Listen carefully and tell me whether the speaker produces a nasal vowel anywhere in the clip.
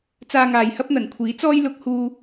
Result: no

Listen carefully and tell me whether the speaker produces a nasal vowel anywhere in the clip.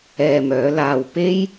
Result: no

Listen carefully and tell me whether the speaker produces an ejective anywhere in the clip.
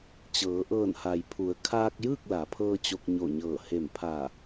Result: no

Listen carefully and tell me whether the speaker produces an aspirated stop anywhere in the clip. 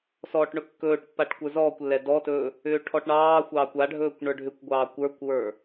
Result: yes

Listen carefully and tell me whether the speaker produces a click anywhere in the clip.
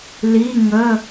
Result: no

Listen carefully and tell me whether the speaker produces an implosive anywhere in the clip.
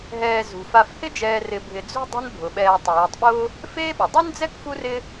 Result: yes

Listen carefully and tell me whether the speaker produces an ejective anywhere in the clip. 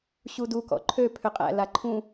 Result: yes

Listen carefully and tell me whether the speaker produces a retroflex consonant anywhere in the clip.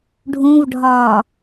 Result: yes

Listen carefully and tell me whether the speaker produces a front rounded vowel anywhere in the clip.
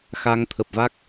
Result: no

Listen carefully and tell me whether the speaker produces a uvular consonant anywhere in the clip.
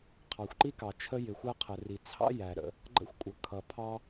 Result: yes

